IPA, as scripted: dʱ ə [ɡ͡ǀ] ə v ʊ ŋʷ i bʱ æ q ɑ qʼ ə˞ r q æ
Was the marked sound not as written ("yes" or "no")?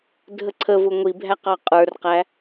yes